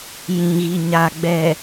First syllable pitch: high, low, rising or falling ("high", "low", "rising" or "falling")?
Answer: low